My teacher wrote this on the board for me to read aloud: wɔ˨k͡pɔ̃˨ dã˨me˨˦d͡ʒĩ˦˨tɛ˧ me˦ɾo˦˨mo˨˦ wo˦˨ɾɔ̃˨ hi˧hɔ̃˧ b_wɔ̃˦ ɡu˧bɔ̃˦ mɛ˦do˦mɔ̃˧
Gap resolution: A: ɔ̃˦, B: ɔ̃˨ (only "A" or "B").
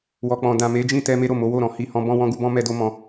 A